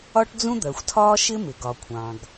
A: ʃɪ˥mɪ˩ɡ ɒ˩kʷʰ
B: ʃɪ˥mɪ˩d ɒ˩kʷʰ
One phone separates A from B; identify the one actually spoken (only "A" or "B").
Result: A